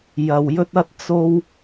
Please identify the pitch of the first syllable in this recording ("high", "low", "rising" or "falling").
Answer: low